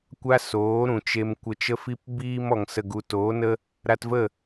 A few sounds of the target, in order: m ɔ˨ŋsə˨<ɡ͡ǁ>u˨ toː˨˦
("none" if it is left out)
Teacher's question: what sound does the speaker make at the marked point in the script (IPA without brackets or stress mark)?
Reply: ɡ